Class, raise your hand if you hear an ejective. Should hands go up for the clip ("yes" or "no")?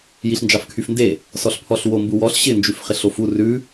no